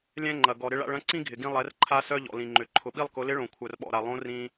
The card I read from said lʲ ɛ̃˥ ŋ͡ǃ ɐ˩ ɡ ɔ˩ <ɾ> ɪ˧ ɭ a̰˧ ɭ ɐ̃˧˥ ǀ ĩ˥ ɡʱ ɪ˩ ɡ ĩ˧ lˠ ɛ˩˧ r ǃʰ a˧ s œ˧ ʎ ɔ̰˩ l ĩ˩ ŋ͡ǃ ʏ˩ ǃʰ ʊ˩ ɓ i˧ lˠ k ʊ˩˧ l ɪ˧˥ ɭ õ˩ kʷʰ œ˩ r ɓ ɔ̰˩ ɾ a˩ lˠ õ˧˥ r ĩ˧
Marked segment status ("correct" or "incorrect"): correct